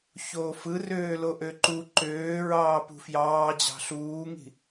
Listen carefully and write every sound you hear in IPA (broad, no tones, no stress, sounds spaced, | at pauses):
ç oː f ɯ r øː l o ʔ ø ǃ u ǃ øː ɹ ɑː p ṳ f j ɑː d͡ʑ ɑ̤ ɬ uː ŋ i̤